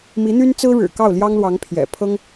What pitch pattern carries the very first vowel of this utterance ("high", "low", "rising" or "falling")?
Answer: rising